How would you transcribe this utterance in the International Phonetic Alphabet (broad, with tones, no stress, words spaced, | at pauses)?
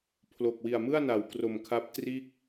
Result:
pʰlo˨˩k̚wi˨˩a̯mɯ˥˩a̯ na˩˦wkro˨˩mkʰa˦˥p̚ triː˥˩k̚